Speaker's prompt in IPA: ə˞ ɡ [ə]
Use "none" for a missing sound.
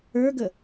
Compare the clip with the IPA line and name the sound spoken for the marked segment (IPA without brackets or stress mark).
ə